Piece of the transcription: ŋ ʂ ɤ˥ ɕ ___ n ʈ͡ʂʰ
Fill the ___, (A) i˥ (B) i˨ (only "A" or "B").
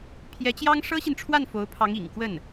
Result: B